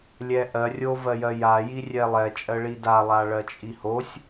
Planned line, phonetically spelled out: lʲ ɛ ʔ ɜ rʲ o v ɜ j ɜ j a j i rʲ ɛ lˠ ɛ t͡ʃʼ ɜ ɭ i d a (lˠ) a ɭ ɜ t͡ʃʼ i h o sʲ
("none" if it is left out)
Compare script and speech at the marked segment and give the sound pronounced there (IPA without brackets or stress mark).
lˠ